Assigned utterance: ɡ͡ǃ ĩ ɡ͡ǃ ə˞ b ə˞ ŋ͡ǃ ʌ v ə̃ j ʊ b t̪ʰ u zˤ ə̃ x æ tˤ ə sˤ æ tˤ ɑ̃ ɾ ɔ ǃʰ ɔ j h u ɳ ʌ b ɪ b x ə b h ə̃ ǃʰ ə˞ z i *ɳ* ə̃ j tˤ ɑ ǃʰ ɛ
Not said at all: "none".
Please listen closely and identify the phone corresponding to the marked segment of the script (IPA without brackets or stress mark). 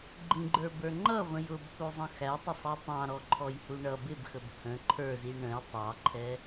ɳ